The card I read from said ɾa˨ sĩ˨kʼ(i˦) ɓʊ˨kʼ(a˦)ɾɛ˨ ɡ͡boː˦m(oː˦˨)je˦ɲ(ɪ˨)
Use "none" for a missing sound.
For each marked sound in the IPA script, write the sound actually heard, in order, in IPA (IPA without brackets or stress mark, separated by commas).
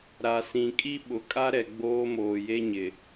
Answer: i˦, a˦, oː˨, ɪ˨